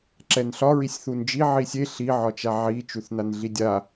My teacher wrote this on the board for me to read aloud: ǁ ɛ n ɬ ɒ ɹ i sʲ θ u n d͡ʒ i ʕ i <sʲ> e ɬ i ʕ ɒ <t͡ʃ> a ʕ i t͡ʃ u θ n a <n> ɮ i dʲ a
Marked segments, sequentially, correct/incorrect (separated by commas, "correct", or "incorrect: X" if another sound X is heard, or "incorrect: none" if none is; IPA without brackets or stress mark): correct, correct, correct